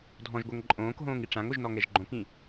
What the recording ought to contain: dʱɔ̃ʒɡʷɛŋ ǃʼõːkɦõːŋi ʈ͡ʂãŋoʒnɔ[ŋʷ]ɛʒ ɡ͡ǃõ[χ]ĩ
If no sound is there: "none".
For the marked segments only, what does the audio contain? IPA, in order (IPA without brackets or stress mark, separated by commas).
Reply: ŋ, k